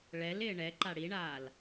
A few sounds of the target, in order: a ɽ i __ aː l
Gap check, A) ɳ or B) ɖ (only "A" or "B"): A